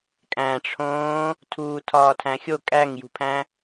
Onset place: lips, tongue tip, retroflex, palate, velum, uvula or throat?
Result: velum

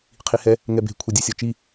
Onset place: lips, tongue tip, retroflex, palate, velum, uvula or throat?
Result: uvula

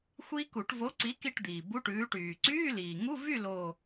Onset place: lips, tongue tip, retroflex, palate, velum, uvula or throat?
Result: velum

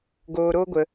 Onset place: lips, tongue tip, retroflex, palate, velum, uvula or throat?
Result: velum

